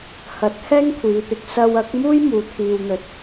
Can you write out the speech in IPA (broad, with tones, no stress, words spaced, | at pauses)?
hɐ˨˥t̚ hɛː˥ŋkʷʰiː˨˧t̪ɪ˨k̚ sɐ˧wɐ˨˥k̚muː˥j muː˨t̪ʰiː˨wn̪ɵ˨˥t̚